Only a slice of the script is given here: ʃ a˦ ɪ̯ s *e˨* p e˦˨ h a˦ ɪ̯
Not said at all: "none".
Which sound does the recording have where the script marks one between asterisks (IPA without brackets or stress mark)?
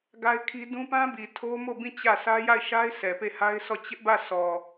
ɛ˨